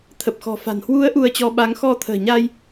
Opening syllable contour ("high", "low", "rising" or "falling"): low